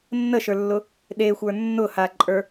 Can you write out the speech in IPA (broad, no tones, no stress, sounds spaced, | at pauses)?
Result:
nː ə ʃ ə˞ lː ʊ | ɗ e xʷ ə˞ nː ʊ h a ǃʼ ə˞